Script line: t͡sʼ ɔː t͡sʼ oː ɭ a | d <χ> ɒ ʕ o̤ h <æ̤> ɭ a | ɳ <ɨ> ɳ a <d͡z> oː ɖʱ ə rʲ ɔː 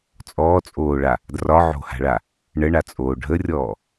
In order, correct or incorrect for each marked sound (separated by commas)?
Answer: incorrect, incorrect, incorrect, incorrect